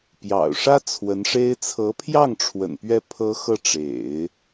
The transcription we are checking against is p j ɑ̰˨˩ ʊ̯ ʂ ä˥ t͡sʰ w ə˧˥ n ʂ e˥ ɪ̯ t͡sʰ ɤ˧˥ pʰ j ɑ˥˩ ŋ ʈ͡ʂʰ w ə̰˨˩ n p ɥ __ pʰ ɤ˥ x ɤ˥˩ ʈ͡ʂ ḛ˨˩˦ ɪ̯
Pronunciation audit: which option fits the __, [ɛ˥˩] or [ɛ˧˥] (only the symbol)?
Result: ɛ˥˩